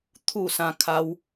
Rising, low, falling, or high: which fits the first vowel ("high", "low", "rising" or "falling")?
falling